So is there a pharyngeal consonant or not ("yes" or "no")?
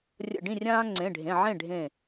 yes